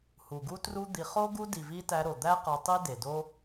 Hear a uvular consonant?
yes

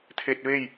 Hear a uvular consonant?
no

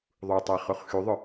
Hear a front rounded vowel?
yes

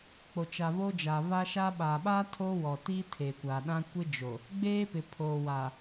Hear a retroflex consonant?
no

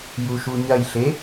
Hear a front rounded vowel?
no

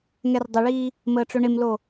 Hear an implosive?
no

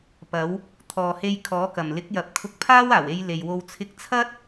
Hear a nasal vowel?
no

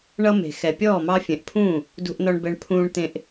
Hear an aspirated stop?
yes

